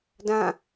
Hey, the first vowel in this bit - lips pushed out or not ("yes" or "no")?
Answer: no